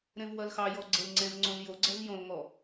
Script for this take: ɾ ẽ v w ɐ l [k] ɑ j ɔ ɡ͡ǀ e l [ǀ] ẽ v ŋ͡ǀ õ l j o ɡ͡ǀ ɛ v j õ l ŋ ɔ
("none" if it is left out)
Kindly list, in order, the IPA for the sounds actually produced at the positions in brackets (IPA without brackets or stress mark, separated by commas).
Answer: x, ŋ͡ǀ